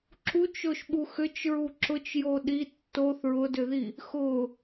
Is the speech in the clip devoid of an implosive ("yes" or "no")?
no